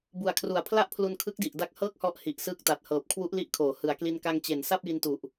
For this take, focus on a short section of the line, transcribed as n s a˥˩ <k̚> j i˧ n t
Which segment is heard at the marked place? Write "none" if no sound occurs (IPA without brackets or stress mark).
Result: p̚